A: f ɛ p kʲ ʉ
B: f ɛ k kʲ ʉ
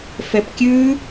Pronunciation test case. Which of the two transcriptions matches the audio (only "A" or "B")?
A